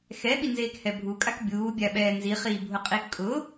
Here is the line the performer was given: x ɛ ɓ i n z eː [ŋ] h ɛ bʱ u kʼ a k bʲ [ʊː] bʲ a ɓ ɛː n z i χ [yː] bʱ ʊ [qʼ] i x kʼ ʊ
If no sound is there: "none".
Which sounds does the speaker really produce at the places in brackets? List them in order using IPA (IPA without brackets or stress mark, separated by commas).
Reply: k, uː, iː, qʼ